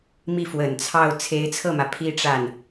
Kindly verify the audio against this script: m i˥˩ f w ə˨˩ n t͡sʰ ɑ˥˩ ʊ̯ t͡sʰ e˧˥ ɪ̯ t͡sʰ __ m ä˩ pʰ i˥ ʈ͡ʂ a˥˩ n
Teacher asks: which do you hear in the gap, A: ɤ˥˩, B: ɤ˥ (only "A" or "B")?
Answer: A